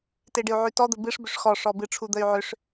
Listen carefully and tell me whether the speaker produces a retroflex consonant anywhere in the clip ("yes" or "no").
yes